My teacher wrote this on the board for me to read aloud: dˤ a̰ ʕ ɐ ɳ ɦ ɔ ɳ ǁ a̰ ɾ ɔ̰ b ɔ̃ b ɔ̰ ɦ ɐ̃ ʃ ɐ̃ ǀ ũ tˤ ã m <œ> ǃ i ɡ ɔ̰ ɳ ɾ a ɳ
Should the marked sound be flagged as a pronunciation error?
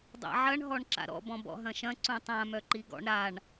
no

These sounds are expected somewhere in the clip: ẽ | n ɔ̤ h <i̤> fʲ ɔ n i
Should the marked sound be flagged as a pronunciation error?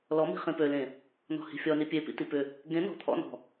no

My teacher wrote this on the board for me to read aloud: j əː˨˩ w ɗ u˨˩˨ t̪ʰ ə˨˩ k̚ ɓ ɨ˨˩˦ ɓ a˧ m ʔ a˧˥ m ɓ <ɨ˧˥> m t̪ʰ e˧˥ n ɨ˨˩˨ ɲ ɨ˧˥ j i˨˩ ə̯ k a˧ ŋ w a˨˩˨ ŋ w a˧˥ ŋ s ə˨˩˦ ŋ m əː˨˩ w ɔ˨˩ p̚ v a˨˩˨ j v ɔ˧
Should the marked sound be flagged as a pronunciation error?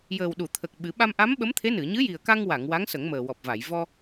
yes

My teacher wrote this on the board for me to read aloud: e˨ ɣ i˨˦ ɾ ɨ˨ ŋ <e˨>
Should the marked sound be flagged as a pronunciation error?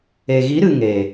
no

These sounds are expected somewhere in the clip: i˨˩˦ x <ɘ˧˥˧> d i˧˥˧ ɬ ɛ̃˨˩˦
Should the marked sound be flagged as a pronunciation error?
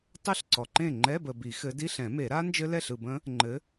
yes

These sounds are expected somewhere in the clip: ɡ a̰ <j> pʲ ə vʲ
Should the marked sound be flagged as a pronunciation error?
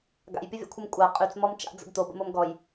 no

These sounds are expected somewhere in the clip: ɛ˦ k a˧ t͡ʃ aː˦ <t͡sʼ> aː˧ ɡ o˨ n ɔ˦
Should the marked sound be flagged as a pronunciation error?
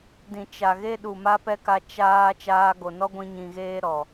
yes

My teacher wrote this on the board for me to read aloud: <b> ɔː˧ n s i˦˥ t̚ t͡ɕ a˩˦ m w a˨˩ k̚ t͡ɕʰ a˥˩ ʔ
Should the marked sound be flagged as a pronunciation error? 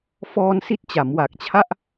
yes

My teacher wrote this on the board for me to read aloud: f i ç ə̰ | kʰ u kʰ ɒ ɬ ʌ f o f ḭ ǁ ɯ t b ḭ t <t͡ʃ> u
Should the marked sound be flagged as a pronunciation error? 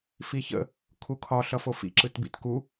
yes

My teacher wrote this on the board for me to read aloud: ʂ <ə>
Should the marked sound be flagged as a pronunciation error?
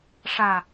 yes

